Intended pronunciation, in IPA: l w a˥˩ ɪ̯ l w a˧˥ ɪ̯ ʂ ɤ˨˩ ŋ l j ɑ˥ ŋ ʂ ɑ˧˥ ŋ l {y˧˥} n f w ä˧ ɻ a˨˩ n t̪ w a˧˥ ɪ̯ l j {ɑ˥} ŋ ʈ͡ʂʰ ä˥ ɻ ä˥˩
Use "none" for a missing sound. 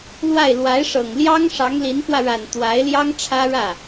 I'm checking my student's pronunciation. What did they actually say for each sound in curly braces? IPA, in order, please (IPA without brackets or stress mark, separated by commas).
i˧˥, ɑ˥